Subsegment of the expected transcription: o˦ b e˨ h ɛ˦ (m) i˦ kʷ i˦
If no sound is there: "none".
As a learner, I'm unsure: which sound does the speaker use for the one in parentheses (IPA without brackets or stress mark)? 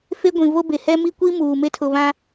m